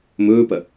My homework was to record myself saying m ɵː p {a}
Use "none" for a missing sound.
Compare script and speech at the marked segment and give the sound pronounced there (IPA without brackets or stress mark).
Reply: ɐ